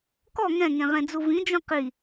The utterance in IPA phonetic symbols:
k ɔ ŋ ɛ̃ ŋ ẽ ʁ ẽ d͡z u v ĩ d͡ʒ ũ q i

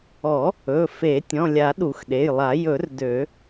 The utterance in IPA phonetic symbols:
ɔ˨˩˦ | ɵ˩˧˩ f e˨˩˦ tʲ ɔ̃˩˧˩ lʲ a˨˩˦ ɗ u˨˩˦ x ɗ e˩˧˩ j lˠ a˨˩˦ j ɵ˨˩˦ r d ø˨˩˦

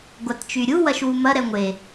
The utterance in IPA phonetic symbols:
ɡʷ a t t͡ʃ y ɾʲ u w ɐ ʃ w u m ɐ ɾ ɛ ŋʷ e

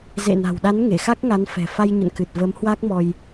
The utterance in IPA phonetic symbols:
z ḛ˧˨ n a̤˨˩ w ɗ a˨˦ n ŋ e˧˩ x a˦˥ k̚ ŋ a˨˦ n f ɛ̤˨˩ f a˧ j ɲ ə̰˧˨ n k ɨ˨˩ t̚ v ə˨˦ m h w a˦˥ k̚ m ɔ˧ j

